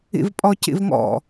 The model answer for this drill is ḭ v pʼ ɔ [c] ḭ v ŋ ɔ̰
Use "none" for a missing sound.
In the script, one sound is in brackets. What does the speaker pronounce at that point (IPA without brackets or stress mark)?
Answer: c